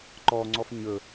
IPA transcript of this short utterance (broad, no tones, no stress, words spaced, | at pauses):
ǃɔŋ͡ǀɔf ɲɵ